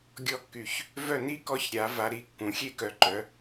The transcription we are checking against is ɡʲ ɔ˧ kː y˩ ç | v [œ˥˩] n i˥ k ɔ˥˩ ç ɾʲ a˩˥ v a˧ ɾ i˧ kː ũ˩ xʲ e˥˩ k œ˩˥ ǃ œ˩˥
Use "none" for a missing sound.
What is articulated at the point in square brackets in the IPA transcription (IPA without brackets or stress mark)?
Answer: œ˥˩